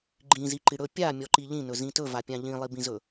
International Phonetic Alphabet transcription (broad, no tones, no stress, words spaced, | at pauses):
ɡ͡ǃĩziǃi ɽɵ pʲamʲɔǃi ʎĩnɵzĩ tɵvapʲã ʎĩlˠibĩzɵ